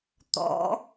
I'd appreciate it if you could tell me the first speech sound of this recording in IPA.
t̪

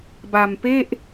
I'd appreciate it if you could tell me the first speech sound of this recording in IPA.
b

